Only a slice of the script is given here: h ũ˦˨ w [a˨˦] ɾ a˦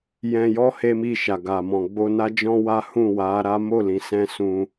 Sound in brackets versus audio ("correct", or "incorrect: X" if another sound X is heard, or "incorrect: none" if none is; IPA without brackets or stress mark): correct